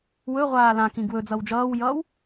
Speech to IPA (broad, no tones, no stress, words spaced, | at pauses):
wɵʁʷaː lãkĩ ɡwɵ d͡zʌwd͡ʒʌːwjʌːw